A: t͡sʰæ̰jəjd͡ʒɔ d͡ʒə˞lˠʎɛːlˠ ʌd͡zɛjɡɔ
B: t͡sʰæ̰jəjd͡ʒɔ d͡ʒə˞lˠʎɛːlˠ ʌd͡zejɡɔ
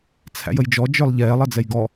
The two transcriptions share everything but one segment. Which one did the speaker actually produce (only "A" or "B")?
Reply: A